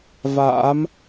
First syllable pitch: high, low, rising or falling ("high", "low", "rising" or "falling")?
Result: rising